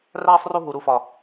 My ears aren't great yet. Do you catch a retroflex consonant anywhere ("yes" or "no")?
no